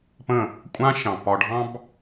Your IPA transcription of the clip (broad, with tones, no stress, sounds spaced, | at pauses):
p ə̃˦˨ | kʷʼ ã˦ ʃ ɑ̃˨ p ɒ˧ ɖʱ ɑ̃˦ b